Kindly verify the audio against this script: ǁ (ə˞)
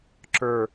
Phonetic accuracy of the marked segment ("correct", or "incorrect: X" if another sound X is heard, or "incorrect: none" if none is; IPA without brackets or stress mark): correct